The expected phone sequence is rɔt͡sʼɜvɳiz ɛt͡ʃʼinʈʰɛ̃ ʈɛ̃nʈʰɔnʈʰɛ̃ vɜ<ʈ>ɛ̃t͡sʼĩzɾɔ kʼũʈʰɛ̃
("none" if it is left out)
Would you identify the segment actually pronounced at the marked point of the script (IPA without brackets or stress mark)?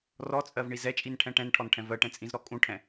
ʈ